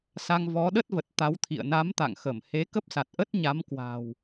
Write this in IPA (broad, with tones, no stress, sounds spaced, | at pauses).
s a˧ ŋ v ɔ˨˦ ɗ ə˦˥ t̚ v ə˨˩ t̚ t̪ a˨˦ w t̪ʰ ḭ˧˨ ə̯ n a˨˦ m t̪ a̰˧˨ ŋ x ə˧˩ m h e˨˦ k ə˦˥ p̚ s a˨˩ t̚ ʔ ə˦˥ t̚ ɲ a˨˦ m k w a̤˨˩ w